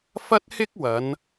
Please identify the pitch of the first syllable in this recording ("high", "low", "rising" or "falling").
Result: high